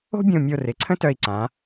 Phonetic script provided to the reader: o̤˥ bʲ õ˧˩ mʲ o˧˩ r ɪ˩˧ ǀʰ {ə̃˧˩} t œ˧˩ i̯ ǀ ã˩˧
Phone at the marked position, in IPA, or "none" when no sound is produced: ə̃˥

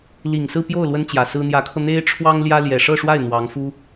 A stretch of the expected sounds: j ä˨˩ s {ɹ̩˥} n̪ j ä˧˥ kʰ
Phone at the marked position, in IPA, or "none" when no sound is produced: ɹ̩˥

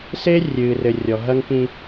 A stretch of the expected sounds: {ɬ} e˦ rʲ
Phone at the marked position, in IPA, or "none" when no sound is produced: s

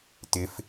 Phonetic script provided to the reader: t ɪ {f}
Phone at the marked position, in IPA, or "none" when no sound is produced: f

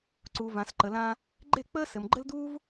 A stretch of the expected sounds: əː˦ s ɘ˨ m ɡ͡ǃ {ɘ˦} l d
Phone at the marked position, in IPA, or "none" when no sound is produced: ɘ˦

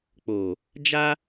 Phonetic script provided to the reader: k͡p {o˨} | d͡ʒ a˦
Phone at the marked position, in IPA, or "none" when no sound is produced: o˨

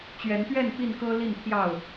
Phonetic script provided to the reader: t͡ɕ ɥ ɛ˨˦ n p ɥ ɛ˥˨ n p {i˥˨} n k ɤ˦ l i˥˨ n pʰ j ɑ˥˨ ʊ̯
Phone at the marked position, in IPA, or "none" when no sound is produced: i˥˨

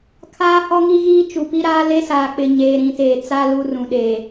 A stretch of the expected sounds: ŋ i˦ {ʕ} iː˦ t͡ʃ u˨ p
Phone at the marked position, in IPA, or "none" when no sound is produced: ɣ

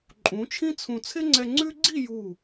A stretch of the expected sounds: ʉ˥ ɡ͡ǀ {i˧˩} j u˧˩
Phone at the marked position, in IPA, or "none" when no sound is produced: i˥˧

